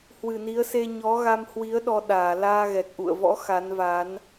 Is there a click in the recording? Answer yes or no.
no